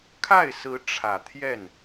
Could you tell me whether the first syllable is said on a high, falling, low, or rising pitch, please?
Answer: falling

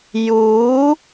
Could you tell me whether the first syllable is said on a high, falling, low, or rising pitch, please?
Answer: rising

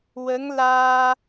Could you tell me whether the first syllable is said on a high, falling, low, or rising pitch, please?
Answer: rising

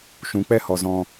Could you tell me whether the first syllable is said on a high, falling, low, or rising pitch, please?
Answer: rising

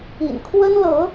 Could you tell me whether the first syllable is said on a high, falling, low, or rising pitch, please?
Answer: low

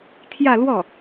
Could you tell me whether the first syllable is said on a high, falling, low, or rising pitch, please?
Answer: falling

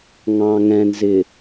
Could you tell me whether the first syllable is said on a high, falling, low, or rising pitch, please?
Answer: low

